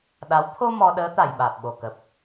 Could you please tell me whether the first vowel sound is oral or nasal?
oral